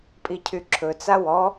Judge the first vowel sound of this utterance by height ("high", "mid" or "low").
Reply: high